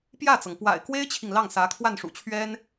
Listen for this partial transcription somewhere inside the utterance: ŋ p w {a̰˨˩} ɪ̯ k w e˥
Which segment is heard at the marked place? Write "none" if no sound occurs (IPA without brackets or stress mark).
a̰˨˩